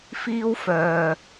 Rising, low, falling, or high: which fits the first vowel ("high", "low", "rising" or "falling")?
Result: high